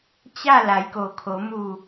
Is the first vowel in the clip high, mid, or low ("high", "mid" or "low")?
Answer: low